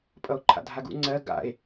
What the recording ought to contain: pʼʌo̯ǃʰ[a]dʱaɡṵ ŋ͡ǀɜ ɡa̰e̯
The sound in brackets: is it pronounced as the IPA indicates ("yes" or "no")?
no